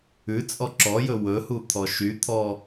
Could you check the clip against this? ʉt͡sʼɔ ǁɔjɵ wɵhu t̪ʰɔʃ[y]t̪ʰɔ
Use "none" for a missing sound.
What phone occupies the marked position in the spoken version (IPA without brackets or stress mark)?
y